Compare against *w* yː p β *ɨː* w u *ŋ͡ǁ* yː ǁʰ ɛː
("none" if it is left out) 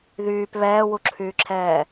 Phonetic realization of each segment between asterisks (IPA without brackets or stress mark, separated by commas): ð, ɛː, ǁʰ